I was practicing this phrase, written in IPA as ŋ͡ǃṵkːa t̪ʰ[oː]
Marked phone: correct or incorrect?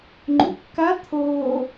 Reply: correct